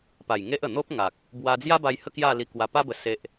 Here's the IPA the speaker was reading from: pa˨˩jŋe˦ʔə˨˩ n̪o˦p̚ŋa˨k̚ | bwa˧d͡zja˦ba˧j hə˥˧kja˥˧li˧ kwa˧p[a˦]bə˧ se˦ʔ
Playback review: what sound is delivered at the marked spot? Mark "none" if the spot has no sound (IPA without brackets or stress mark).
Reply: a˦